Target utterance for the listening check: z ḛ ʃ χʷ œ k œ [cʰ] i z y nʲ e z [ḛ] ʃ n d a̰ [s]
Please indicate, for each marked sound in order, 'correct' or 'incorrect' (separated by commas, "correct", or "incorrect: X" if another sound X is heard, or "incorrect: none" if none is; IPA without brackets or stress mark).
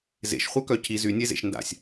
correct, correct, incorrect: sʲ